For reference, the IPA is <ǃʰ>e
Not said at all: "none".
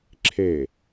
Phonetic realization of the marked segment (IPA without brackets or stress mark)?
ǁʰ